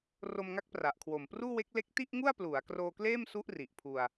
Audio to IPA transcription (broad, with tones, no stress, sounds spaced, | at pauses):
r o˧ m ŋ a˦˥ k̚ p r a˨˩ ʔ kʰ w o˨˩ m p r uː˥˩ w e˦˥ k̚ l e˦˥ k̚ t i˥˩ ʔ ŋ u˥˩ a̯ p l u˩˦ a̯ k r oː˧ k l eː˥˩ m s u˦˥ ʔ r i˨˩ ʔ pʰ u˧ a̯